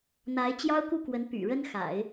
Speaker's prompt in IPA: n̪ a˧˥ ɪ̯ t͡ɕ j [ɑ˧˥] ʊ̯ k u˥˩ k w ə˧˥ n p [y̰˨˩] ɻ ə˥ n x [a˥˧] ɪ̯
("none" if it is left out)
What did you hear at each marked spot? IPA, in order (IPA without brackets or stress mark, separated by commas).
ɑ˥, y̰˨˩, a̰˨˩˦